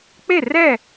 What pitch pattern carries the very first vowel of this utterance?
falling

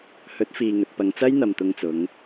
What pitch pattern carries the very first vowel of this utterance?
rising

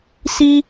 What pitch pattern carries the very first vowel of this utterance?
high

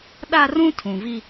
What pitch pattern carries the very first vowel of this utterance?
high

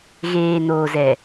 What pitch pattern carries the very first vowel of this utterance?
low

